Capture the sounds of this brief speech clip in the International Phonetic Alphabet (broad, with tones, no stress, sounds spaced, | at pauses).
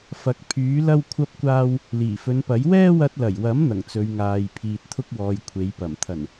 f ɐ˨˥ k̚ pʰ yː˨˥ l ɐ˥ w kʷʰ ɐ˥ p̚ kʷ aː˥ w | l iː˨˩ f ɵ˨˧ n p ɐ˨˥ j w ɛː˥ w ɐ˧ t̚ l ɐ˨˩ j w ɐ˨˥ m n̪ ɐ˨˩ ŋ t͡s ɵ˨˧ ɥ ŋ aː˨ j pʰ iː˨ t̚ t̪ʰ ʊ˥ k̚ w ɔː˨ j kʷʰ e˨˥ j p ɐ˨˩ m t̪ʰ ɐ˨˩ n